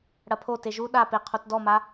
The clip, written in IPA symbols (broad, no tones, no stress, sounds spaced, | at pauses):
ɽ ɐ pʰ o t e ʒ u ɗ a p e qʰ o t d ɔ m a